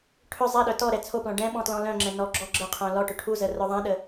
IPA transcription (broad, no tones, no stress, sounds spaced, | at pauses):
ʈʰ ʏ zˤ ɛ ɗ œ t ɔ ɾ ɛ t͡sʰ o p l ɔ̃ ɖ ɛ̃ ɓ ɔ̃ t l ɔ̃ l œ̃ ŋ͡ǁ ɛ̃ n ɔ ɡ͡ǁ ɔ ɡ͡ǁ ə qʰ œ̃ l ɔ ʈ ʏ ʈʰ u z ə r œ ðˤ ɛ̃ ɗ ə